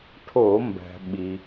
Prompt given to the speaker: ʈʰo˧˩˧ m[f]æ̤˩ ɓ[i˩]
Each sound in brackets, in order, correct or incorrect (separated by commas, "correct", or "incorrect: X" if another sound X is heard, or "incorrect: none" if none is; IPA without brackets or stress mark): incorrect: b, correct